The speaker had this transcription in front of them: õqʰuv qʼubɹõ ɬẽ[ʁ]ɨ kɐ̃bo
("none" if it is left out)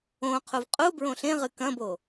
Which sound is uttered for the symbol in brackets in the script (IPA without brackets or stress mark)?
ʁ